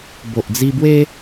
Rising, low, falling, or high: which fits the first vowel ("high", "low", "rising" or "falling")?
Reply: low